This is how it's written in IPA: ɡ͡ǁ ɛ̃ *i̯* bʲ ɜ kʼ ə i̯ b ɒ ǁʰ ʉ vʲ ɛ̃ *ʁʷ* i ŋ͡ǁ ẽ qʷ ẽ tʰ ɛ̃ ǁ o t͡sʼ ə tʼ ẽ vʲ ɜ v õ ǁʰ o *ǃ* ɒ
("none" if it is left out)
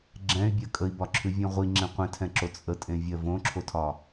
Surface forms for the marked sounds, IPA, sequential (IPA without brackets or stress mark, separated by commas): y̯, ʁʷ, tʰ